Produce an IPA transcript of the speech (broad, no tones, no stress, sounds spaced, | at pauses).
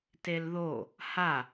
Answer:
t e l ð o | h a